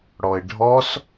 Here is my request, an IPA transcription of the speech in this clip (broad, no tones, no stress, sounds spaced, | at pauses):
ɽ ɔ ɪ̯ ɖʱ ɔ s